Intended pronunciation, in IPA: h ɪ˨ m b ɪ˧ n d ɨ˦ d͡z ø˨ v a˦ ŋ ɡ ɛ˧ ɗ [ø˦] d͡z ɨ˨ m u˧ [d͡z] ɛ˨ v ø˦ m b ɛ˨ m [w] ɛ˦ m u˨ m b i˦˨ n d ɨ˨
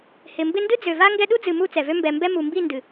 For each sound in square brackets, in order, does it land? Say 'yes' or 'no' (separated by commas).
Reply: no, no, no